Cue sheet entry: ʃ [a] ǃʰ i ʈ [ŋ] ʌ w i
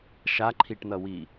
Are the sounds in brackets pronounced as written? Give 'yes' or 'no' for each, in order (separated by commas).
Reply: yes, no